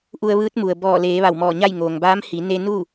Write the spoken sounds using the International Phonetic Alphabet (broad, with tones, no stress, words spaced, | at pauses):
ʔu˧ə̯ʋɯː˧˥t̚mu˩ə̯ bɔː˧˩leː˩˧ ʋa˧˩wmɔː˧˩ɲa˥˨j ŋoː˩ŋbaː˧˥m hi˩˧ ne˧ nu˥˨